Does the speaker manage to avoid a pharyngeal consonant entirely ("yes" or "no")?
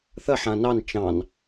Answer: no